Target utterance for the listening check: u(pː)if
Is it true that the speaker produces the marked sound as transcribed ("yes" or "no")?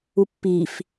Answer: yes